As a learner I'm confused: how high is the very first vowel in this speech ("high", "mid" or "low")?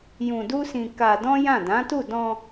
high